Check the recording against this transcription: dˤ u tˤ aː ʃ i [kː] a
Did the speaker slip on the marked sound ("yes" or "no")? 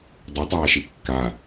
no